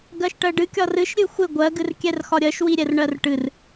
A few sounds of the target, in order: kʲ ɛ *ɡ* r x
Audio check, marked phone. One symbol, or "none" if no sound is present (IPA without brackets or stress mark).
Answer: none